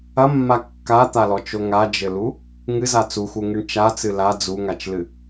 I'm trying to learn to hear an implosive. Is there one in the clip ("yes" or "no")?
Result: no